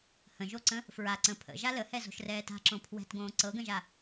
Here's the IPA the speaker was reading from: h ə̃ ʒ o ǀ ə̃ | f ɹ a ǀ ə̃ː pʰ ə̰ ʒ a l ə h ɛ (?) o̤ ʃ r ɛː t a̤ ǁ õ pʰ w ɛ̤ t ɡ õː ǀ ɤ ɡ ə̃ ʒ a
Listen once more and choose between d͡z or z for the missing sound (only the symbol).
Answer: z